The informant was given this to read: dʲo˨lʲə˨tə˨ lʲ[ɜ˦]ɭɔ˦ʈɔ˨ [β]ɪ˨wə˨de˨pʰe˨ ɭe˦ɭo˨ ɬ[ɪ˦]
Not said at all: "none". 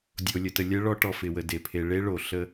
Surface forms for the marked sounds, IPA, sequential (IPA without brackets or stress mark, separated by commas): ɜ˦, f, ə˦